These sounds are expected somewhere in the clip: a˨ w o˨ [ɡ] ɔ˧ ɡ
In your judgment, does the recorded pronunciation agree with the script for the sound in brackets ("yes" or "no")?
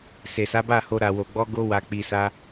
no